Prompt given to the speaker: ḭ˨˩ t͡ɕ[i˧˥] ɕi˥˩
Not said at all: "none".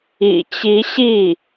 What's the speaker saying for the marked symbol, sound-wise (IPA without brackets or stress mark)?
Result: i˧˥